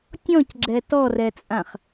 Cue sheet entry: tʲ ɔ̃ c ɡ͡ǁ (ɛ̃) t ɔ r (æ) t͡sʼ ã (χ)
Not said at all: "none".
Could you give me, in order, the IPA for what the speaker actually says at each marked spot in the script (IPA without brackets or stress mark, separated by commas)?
ɛ, ɛ, χ